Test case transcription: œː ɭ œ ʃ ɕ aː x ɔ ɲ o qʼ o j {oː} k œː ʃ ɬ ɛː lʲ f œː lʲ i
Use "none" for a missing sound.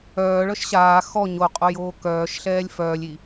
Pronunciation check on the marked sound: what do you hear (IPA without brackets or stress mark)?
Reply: oː